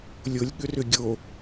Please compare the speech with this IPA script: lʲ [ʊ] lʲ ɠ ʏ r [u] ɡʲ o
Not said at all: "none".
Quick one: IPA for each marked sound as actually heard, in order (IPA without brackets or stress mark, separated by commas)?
ʊ, ʏ